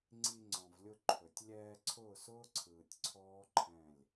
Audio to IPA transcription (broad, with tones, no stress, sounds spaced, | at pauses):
ŋ͡ǀ i˧ ŋ͡ǀ ɔ̃˨ v lʲ ʊ˧ ǃʰ ɵ˨ tʲ lʲ ɛː˧ ǀʰ ʊː˦˨ s ʊː˦ ǀʰ ɯː˨ tʲ ǀʰ ɔː˦ ǃʰ ɛ̃˦˨ lʲ